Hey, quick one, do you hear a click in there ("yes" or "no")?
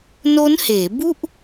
no